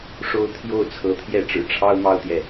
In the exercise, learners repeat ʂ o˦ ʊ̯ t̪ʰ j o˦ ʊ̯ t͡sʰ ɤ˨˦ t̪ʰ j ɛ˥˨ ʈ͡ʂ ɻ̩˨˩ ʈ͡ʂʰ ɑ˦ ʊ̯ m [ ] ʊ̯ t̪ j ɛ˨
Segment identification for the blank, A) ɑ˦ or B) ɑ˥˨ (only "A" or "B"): A